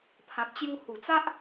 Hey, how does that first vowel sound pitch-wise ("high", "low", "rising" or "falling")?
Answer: low